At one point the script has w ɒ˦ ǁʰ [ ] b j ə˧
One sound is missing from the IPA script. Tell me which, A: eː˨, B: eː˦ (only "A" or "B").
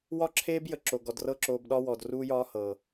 B